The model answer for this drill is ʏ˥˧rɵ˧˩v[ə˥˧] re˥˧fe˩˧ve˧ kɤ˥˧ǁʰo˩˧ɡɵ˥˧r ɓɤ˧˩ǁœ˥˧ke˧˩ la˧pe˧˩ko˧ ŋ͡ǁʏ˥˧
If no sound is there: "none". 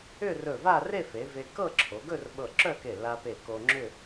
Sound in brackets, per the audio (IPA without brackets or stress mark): a˥˧